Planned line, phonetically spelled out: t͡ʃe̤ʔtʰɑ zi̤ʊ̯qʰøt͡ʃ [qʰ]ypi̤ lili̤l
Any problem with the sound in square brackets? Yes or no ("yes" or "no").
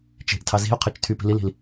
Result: yes